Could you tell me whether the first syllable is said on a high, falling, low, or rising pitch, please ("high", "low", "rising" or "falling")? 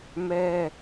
high